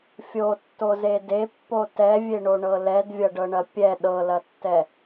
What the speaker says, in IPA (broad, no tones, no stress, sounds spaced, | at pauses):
fʲ o tː o z e d e pː o t ɛ vʲ e ɳ o ɳ ɤ l ɛ d vʲ ɐ ɖ ɤ ɳ ɐ pʲ ɛ ɗ ɤ l ɐ tː ɛ